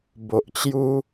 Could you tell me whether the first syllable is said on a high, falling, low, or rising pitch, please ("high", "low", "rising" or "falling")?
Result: low